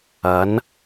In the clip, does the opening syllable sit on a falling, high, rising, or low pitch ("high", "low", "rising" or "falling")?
rising